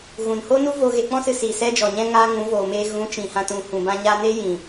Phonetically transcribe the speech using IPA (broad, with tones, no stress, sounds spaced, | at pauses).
ɣ ũ˨ n h o˦ n u˦ v o˧ ɣ e˧ k͡p ɔ̃˦ s ɨ˧ s iː˨ s ɛ˦ d͡ʒ ɔ˨ ɲ ɛ̃˦ ŋ aː˧ ŋ ũ˨˦ v oː˨ m eː˧ ɣ ũ˨˦ t͡ʃ ĩ˨ h ã˧ t ũ˨ h ũ˨ b ã˧ ɲ aː˧ n eː˦ j ĩ˨